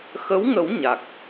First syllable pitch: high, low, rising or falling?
rising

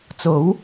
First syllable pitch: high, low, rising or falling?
rising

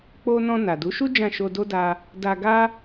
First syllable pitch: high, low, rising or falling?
high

